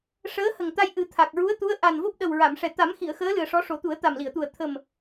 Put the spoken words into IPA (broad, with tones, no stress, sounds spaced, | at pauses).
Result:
ʂ əː˧˥ h ə˨˩ ŋ t̪ a˧ j ʔ ɨ˨˩˦ t̪ʰ a˨˩ k̚ ɹ u˧˥ ə̯ t̪ u˧˥ ə̯ ʔ a˨˩ n v o˦˥ p̚ ɗ ə˨˩ w ɹ a˨˩˨ m ʂ ɛ˨˩ t̪ a˨˩˦ m x i˨˩˨ ə̯ x əː˧˥ l ɨ˨˩ ə̯ ʂ ɔ˧˥ ʂ o˨˩˦ t̪ u˨˩˦ ə̯ t̪ a˨˩ m l i˨˩˨ ə̯ t̪ u˨˩ ə̯ t̪ʰ ə˨˩ m